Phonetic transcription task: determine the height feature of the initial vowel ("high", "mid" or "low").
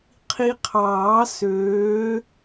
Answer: high